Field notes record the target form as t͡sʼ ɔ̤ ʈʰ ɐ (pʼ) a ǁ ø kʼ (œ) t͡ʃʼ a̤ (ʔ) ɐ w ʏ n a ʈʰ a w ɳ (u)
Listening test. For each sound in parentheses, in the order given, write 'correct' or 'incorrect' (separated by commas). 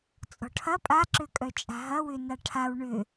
correct, correct, incorrect, incorrect